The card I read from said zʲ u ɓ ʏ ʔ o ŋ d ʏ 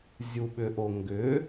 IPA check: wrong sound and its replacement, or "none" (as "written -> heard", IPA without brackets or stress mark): d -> ɡ